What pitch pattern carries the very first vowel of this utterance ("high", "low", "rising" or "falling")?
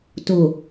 low